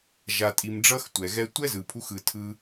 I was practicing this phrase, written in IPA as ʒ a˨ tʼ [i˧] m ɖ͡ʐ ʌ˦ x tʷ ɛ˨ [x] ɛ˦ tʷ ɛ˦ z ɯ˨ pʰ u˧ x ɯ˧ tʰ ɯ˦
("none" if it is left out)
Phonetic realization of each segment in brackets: i˨, ɣ

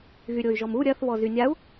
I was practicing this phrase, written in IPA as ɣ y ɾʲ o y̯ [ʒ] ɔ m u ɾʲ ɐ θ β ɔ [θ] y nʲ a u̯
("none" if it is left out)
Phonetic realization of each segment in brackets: ʒ, z

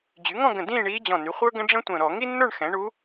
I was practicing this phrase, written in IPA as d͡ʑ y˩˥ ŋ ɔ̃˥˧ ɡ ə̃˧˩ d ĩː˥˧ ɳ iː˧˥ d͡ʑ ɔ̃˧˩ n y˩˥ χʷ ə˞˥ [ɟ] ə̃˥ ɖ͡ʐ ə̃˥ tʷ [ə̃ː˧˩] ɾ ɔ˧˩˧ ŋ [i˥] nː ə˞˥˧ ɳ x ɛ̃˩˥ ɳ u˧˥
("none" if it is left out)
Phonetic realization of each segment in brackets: ɡ, ə̃ː˧˩, i˥

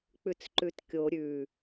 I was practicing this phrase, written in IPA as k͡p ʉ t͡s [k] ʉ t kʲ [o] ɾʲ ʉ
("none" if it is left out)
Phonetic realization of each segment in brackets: ǃ, o

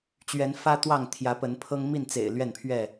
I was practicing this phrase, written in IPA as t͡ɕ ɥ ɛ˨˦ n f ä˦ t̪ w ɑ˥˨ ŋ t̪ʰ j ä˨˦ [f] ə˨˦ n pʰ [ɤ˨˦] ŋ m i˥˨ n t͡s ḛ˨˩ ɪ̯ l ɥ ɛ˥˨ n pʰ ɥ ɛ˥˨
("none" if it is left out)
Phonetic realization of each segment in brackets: p, ɤ˦

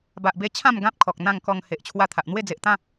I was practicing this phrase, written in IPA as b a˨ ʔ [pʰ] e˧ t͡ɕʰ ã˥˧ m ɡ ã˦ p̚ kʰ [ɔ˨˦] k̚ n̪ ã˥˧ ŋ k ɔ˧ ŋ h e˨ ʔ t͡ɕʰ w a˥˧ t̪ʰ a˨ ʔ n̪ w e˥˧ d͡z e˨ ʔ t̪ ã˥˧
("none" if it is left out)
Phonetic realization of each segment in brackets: b, ɔ˨

